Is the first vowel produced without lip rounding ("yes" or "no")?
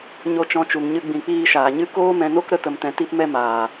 no